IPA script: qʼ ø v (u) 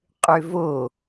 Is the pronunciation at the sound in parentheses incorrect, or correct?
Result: incorrect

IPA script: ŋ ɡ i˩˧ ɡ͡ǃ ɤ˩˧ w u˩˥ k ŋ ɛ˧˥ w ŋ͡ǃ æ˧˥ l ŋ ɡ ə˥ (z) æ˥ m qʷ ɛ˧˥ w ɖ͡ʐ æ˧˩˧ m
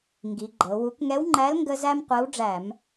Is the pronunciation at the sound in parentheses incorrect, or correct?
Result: correct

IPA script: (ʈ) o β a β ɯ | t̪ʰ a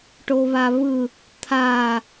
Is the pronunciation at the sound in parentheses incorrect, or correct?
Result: correct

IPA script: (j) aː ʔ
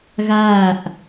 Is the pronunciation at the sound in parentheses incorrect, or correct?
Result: incorrect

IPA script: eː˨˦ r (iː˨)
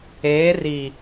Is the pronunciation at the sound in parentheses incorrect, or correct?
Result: correct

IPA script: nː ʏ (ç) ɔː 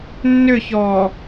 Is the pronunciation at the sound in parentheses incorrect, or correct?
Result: correct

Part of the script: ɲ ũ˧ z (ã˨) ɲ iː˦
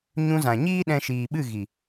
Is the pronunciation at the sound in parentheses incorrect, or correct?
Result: correct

